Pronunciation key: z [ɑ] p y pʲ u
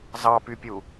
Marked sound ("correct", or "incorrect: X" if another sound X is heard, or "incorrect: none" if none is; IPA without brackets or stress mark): correct